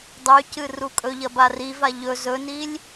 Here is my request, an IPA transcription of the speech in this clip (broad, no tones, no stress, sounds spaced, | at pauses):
dˤ ʉ c ɨ r u kʼ ɵ ʎ ɐ b a r i v a ʎ ɵ z ɵ n i lʲ